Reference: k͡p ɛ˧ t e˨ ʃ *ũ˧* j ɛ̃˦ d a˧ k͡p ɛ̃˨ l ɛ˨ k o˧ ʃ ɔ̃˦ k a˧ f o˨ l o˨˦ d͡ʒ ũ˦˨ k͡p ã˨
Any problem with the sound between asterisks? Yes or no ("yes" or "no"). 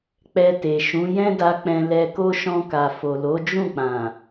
yes